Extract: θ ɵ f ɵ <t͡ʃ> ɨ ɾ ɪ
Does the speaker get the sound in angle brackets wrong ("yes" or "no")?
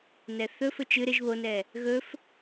no